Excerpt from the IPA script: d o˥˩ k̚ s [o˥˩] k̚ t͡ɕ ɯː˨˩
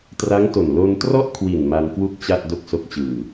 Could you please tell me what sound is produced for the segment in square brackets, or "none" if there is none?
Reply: o˦˥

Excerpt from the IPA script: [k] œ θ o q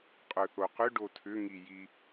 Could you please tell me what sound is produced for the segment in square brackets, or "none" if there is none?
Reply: qʼ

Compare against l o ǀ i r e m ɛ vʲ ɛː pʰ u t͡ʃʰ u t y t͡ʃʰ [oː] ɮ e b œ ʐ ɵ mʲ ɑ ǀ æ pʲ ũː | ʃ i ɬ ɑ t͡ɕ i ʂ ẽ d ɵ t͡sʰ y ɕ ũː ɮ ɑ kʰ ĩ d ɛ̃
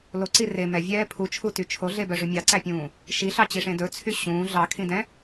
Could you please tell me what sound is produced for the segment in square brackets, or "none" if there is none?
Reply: o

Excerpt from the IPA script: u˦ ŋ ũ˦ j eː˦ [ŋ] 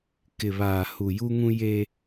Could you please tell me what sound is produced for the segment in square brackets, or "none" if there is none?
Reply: none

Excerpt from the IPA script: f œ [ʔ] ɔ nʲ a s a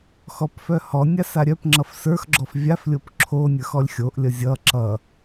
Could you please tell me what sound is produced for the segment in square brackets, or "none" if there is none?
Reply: h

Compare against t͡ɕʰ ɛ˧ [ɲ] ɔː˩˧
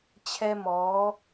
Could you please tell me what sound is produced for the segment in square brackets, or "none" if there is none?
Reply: m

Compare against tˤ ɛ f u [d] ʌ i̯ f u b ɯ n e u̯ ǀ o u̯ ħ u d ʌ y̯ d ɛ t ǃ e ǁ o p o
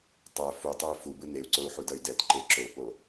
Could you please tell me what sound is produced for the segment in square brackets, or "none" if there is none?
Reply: tˤ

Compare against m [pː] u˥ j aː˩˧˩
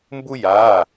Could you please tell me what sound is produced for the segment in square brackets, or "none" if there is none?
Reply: b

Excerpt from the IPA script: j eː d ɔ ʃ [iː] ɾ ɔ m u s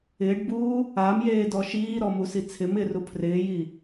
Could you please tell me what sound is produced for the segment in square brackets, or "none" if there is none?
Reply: iː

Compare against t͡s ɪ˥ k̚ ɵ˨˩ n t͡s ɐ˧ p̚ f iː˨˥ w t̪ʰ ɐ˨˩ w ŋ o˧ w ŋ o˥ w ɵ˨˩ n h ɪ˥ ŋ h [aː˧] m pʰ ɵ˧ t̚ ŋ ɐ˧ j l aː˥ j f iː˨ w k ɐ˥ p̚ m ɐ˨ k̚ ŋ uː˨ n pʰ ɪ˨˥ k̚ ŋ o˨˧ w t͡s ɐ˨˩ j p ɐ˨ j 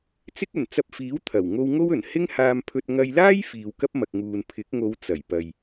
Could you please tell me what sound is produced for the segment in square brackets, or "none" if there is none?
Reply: aː˧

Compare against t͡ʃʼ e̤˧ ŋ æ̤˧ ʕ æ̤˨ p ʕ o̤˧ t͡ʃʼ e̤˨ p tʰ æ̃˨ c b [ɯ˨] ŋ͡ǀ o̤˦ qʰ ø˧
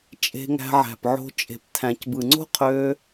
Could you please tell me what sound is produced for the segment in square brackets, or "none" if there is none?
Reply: ɯ˨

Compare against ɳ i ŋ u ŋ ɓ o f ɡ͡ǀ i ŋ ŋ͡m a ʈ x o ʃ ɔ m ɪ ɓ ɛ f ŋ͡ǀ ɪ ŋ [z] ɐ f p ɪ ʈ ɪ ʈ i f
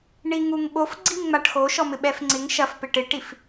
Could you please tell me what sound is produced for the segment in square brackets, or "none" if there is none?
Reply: ʃ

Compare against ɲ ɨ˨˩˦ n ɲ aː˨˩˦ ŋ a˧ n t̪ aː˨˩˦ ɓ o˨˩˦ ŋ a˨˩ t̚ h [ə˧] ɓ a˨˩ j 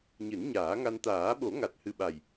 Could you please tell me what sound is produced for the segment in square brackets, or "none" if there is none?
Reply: ɨ˧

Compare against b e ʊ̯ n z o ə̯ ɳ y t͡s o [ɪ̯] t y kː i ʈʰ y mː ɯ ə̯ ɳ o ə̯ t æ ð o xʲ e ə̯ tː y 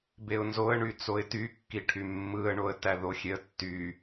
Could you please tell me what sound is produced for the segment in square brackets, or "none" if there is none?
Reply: ɪ̯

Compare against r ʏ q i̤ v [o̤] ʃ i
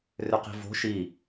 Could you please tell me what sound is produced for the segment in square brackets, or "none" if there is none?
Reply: o̤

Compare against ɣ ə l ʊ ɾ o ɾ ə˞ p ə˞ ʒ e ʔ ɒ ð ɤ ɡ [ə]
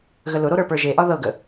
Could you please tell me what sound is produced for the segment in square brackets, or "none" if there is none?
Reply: ə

